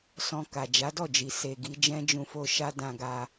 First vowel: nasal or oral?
nasal